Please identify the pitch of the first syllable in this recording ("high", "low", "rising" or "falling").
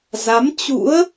rising